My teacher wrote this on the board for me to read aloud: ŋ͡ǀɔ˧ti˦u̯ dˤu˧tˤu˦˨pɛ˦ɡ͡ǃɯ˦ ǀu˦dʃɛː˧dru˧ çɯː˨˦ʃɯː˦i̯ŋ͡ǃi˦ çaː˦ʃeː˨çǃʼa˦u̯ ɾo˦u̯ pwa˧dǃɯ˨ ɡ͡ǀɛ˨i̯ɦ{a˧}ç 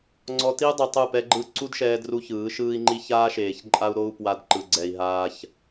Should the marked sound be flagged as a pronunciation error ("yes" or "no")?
yes